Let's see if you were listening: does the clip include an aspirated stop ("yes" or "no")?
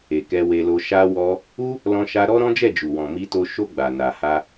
no